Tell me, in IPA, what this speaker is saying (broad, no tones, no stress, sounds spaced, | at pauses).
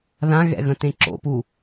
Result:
ð ã ɣ ɛ̰ ɣ ə̃ t ẽ ǁ o̰ p u